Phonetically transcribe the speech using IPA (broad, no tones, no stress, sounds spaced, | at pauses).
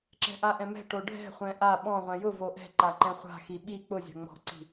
ǁ ɛ̤ ʔ a ʔ ɛ̃ m ɛ̤ ʈ o ɖʱ ɛ̤ χʷ ɛ̃ ʔ a ɓ ɔ̃ ʁʷ ɛ̃ j ʊ v o ʔ ɛ̤ ǃ a ǃ ɛ̃ χʷ a̤ x i ɓ i k͡p ʊ zʲ a̤ ŋ͡m ɔ̤ ǀ i̤